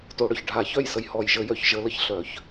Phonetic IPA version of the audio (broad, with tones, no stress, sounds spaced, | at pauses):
t o˨˦ ɽ œ˨˩ ç ɖʱ a˧˩˧ ç œ˥˩ j s ə˧˩˧ j h ɔ˨˩ j ʒ ə˧˩˧ j œ˨˩ ç ʒ ə˨˦ l ə˨˩ ç ɬ œ˧˩˧ ç